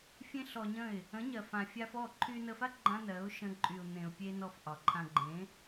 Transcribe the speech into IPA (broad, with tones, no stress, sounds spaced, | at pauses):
fʲ ẽ˦ ɬ ɔ˧ ɲ ə̃˦˨ ɪ̯ | ə̃˨˦ ɲ ɜ˨ f ã˨ fʲ a˧ f ɔ˦˨ ǃʰ y˧ n ə˧ f a˦ ɡ͡ǃ ã˦ n ɜ˨˦ ʊ̯ ʃ ə̃˧ ǃʼ y˨ ʊ̯ n̪ ẽ˨ ʊ̯ pʲ e˧ n ɔ˧ f ʔ ɒ˨ ǃʰ ã˧ ɡ͡ǃ ẽ˨˦